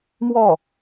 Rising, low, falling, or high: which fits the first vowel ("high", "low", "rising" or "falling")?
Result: falling